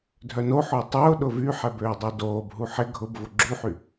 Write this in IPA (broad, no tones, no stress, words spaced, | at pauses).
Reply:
dʱœnoħʊː tˤʊː ɗʊvyħɛb øːdˤɛdoːbɦu ħɪ ɡʱʊbvʊ ɡ͡ǁuħy